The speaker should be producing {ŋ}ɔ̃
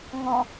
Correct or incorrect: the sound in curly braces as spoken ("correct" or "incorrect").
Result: correct